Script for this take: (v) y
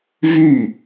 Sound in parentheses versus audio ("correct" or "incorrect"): correct